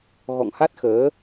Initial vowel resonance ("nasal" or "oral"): oral